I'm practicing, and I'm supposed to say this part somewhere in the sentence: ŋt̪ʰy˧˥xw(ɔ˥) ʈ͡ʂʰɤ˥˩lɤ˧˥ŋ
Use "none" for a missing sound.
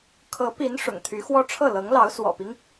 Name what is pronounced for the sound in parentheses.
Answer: ɔ˥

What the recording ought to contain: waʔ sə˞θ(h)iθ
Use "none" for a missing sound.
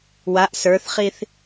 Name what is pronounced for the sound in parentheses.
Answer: χ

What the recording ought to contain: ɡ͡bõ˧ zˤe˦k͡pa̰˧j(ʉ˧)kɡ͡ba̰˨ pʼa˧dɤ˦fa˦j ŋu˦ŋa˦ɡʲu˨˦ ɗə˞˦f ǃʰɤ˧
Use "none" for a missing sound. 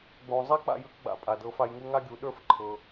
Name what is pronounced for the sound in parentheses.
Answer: ʉ˧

